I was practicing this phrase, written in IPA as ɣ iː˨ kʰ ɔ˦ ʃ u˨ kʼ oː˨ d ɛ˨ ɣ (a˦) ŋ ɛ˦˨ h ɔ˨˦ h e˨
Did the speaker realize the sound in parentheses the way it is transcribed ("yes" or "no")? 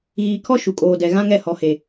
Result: no